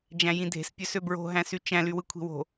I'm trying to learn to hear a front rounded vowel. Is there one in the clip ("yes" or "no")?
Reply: yes